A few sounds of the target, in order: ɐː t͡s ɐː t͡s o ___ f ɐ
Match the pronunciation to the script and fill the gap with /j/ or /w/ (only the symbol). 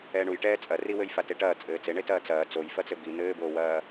j